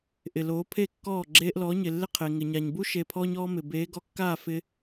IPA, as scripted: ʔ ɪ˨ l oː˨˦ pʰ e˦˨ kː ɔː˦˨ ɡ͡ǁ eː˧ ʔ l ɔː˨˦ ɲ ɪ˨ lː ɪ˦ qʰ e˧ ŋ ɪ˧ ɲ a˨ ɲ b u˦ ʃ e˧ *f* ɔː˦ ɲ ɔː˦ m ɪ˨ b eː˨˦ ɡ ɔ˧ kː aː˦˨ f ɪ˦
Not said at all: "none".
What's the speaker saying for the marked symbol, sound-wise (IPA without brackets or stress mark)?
pʰ